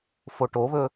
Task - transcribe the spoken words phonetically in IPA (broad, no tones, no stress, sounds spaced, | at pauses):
f o ʈ o β ɵ